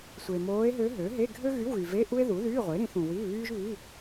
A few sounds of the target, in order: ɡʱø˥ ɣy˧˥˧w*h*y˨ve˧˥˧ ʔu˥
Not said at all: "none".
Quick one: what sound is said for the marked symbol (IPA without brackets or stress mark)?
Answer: ɣ